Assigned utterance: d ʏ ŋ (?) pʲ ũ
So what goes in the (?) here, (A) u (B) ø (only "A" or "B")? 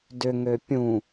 B